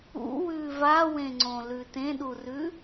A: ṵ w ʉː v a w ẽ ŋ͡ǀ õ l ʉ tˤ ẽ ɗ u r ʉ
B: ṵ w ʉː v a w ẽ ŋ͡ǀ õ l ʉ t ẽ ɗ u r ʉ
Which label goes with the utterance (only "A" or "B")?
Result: B